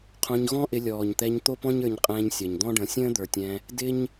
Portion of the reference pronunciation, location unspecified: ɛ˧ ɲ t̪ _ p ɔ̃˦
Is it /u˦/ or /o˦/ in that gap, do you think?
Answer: o˦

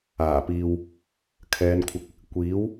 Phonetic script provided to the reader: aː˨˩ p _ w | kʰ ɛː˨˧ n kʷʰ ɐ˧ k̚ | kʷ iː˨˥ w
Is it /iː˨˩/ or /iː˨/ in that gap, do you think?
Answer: iː˨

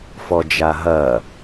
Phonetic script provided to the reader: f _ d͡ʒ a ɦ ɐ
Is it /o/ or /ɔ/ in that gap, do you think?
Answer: ɔ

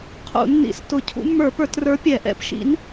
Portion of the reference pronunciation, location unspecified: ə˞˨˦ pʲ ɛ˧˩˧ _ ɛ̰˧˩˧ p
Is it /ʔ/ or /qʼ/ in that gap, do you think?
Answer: ʔ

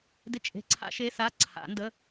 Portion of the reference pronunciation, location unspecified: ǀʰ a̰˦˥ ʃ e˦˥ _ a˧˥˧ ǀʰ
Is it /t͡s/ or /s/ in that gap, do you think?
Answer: s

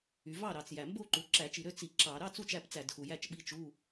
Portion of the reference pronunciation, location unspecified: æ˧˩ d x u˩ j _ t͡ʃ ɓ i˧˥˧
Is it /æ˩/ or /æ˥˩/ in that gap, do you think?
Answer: æ˥˩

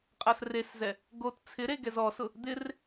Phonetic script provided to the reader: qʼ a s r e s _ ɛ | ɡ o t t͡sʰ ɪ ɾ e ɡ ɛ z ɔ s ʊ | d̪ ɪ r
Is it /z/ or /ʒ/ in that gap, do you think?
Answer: z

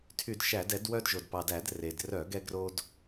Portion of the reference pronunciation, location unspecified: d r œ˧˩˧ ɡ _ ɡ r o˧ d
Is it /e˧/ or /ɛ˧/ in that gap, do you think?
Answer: ɛ˧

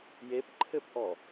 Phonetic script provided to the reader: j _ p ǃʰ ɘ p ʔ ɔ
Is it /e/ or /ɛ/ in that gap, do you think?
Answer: e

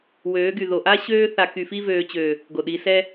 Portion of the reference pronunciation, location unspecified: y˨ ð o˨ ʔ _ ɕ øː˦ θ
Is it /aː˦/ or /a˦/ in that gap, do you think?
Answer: a˦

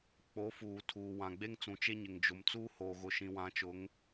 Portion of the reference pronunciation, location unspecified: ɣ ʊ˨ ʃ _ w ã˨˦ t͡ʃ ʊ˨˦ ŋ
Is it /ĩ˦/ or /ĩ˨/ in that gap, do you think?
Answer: ĩ˨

